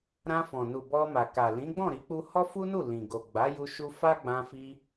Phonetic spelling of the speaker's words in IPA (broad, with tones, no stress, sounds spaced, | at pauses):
ɾ ã˧ f ɔ̃˨ n u˨ b ɔ˧ m a˨ k a˨ l ĩ˨˦ ɡ͡b ɔ̃˦˨ ɾ i˨˦ k͡p u˧ h ɔ˦ f u˦ n u˦˨ l ĩ˨ ɡ o˨ ɡ͡b a˨˦ j u˧ ʃ u˦ f a˦ ɡ͡b ã˧ f i˧